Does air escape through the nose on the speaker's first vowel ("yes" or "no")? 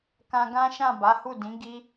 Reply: yes